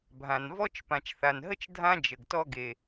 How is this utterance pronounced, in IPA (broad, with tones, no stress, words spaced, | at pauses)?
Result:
bʱã˨nvɔ˥t͡ʃ pã˨t͡ʃθa˨nɦə˥t͡ʃ dʱã˦ d͡ʒə˨ɡtɔ˥ ɡe˨